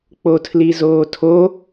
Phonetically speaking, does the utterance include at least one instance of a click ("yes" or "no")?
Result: no